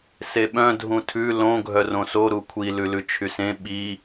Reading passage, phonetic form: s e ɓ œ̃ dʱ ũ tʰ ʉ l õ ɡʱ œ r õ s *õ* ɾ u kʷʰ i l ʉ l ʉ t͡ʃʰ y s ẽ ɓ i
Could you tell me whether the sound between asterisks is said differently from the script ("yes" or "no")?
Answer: yes